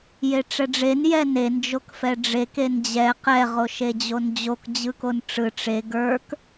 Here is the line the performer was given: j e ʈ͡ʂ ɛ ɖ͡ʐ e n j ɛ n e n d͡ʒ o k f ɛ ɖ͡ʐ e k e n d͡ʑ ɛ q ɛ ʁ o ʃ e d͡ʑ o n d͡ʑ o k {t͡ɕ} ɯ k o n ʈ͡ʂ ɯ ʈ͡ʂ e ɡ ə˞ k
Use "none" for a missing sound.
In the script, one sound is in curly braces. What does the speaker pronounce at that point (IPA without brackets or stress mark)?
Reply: d͡ʑ